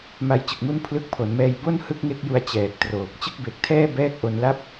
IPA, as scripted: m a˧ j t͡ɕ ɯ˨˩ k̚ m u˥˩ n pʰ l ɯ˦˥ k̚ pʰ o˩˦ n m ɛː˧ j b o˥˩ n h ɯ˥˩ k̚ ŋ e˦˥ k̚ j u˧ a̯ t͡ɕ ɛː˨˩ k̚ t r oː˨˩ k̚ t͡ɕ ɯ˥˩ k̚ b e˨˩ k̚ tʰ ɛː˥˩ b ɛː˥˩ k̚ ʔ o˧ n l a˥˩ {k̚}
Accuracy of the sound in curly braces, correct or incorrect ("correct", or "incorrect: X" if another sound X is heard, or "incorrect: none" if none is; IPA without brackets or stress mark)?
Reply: incorrect: p̚